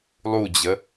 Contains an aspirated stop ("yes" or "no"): no